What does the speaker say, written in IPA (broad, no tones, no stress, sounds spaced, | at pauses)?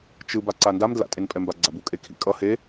t͡ʃ ɯ b a ǀ a n d a m d l a̰ tʼ e n pʼ ɛ m b a ɡ͡ǀ a b u kʼ e kʰ ḭ kʼ ʌ h e